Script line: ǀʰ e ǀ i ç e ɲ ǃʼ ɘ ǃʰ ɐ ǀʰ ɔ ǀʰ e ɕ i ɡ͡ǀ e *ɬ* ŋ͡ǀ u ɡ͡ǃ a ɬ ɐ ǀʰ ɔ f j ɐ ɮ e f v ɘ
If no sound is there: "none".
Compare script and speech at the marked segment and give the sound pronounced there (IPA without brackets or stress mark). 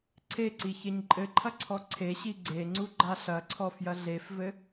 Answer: none